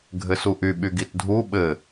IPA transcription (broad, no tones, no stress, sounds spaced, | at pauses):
ɡʱ ɘ s u ʔ y ɓ y ɡ i t dʱ u ɓ ɘ